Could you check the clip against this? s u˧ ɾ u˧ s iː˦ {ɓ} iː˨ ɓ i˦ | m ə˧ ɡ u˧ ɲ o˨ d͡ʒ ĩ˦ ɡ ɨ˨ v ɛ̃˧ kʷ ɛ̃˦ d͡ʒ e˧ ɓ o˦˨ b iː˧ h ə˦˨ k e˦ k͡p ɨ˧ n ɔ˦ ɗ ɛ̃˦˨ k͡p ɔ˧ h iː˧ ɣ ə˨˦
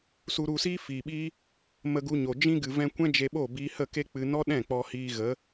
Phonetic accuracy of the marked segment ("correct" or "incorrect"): incorrect